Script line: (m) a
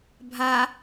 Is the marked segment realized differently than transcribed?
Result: yes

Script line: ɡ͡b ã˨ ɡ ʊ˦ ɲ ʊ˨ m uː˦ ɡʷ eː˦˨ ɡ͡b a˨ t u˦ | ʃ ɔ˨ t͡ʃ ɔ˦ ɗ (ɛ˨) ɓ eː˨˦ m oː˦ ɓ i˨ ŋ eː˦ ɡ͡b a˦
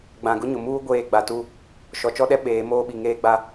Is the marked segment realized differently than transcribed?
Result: yes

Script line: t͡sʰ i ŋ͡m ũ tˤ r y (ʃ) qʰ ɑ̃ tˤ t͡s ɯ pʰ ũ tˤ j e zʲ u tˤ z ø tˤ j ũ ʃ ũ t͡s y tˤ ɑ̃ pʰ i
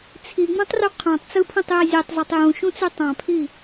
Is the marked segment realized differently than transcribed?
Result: yes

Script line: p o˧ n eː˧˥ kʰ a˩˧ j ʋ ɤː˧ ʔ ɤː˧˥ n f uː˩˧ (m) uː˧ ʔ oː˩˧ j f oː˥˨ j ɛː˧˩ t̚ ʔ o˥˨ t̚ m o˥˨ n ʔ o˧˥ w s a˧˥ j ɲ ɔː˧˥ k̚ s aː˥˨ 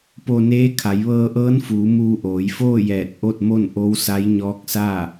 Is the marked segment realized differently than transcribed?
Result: no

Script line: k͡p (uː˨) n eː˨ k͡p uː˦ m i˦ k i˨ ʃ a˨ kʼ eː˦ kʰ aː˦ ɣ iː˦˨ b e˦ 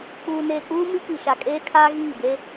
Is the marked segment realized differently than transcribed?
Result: no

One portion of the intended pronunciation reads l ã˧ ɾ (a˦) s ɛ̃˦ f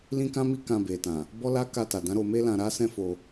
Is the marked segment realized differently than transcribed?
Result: no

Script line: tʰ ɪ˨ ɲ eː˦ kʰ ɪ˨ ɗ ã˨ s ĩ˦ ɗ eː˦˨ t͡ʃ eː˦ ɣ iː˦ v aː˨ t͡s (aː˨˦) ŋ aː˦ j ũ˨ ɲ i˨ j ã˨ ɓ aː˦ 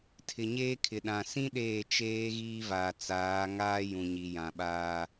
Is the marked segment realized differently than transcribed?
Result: no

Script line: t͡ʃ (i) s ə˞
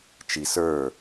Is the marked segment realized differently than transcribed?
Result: no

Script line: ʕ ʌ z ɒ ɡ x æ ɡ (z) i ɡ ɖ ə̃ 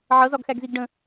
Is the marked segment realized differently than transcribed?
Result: no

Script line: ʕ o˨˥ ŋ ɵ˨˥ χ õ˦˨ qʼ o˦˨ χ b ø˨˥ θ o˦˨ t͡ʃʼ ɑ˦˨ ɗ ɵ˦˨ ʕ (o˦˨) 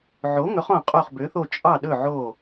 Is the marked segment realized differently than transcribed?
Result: no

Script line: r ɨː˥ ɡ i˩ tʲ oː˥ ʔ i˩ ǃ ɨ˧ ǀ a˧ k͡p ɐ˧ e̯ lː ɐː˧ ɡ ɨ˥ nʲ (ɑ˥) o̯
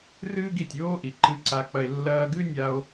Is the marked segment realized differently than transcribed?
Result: yes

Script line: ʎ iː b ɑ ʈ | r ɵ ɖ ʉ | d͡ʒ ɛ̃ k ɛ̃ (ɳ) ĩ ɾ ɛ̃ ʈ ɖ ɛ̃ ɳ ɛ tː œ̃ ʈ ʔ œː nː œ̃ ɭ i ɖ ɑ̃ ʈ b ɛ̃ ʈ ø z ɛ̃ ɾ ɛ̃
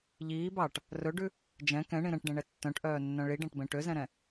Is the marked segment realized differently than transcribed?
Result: no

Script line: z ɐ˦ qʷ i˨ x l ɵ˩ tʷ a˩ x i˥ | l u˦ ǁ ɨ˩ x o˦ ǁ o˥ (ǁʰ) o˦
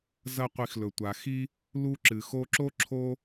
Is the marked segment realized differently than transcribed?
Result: no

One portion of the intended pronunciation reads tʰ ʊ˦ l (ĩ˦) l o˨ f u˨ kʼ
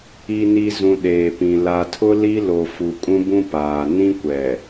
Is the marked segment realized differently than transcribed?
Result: yes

